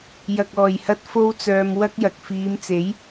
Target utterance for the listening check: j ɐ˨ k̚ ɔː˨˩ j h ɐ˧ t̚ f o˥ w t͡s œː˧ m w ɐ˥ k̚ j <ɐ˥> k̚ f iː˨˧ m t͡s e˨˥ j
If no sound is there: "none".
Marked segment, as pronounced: ɐ˨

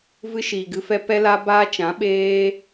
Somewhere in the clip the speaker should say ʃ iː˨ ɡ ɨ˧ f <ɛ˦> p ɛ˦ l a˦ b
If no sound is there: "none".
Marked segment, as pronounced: ɛ˦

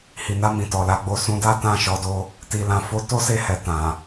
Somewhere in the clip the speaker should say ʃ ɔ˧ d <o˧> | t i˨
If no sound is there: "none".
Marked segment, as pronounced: o˧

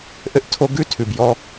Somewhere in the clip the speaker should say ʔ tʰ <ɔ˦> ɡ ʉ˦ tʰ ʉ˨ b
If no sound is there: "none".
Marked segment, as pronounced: o˦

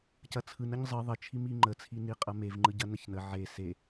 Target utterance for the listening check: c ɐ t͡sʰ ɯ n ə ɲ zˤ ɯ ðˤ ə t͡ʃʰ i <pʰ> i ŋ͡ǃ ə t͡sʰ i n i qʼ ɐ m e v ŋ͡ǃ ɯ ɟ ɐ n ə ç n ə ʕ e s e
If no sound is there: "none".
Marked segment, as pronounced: m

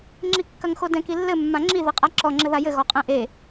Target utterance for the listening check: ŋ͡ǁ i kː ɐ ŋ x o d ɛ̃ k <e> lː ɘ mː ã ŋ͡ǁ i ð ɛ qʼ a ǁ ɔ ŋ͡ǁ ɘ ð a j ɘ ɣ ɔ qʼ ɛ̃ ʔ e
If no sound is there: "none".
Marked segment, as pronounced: i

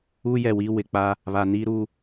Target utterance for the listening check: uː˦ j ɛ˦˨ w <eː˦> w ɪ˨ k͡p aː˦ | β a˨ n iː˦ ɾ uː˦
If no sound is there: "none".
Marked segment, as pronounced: iː˦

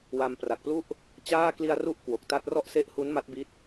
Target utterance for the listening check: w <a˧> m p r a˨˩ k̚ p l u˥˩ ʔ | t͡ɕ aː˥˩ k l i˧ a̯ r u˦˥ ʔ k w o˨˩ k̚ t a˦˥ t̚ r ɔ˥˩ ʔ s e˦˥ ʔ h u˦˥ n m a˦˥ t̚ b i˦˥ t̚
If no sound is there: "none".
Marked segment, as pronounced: a˧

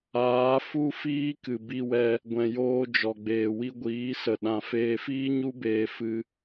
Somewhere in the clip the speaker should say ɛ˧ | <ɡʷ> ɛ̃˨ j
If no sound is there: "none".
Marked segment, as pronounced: ɡʷ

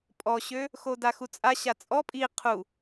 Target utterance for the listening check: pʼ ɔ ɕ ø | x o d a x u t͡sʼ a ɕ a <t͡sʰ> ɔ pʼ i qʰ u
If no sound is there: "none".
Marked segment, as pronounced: t͡sʼ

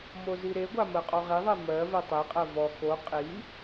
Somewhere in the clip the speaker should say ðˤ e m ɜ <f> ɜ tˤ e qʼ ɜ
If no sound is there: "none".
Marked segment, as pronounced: v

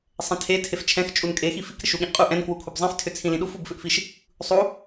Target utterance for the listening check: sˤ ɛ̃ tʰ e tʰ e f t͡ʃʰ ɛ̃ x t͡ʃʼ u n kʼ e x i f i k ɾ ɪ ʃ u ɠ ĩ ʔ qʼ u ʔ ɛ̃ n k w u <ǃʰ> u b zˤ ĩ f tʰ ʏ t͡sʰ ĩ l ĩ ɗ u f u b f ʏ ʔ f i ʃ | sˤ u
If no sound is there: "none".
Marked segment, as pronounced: kʰ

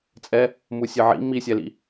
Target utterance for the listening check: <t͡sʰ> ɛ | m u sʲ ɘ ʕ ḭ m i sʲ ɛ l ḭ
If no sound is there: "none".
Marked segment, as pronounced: t͡sʼ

